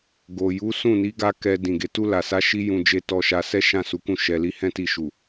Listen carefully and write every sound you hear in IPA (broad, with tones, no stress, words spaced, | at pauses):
ɡo˨ ju˨˦sũ˦˨ni˨˦ ɡa˦kɛ˧ dĩ˨ɡe˨˦ tu˧la˨sa˨˦ʃi˧ jũ˨ d͡ʒe˧ tɔ˧ʃa˧sɛ˦ ʃã˦˨su˨˦kũ˦˨ ʃɛ˨li˧ hɛ̃˦ti˧ʃu˨